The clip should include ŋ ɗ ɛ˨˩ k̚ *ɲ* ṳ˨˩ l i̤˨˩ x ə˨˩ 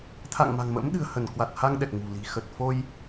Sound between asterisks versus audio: incorrect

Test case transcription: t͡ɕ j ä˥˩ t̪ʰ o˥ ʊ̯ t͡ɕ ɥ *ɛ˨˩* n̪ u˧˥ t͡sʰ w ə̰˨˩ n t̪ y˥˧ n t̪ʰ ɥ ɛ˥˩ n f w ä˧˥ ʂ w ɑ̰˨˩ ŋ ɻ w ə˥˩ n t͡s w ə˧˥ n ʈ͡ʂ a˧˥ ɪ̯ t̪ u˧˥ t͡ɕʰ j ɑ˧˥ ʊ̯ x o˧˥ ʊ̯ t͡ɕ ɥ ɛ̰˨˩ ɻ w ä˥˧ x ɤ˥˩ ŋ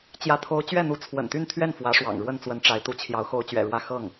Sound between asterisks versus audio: incorrect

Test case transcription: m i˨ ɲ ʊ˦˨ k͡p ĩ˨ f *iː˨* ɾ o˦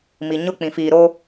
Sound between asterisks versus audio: correct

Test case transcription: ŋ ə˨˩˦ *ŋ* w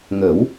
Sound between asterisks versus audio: incorrect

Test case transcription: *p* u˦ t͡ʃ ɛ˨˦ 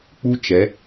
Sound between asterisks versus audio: incorrect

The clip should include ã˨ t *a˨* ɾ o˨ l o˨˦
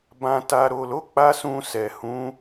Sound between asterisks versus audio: correct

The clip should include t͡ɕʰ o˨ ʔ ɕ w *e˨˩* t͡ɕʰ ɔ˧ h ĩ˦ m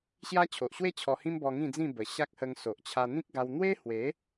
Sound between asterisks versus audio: incorrect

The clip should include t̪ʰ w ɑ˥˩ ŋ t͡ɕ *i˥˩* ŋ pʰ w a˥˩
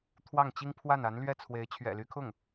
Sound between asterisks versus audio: incorrect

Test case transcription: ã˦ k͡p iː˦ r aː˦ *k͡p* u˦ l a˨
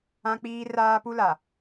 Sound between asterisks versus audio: incorrect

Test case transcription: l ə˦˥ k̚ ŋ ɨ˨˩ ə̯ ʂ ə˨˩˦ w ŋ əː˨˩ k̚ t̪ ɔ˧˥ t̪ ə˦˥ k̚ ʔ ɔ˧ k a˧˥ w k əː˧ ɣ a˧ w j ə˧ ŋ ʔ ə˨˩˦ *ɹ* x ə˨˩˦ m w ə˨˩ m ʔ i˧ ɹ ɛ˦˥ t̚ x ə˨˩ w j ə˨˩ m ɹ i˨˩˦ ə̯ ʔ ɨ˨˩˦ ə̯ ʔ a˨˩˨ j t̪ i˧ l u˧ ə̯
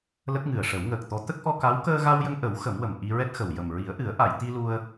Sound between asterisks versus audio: incorrect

